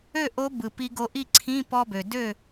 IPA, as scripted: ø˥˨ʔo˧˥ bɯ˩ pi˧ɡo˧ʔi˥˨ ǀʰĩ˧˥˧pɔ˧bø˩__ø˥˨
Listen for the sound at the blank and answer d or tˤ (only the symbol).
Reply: d